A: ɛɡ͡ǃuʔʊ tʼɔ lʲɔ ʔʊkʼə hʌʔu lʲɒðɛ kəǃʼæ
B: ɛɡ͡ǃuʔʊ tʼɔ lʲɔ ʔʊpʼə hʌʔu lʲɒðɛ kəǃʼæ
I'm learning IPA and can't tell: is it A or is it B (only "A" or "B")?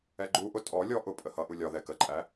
B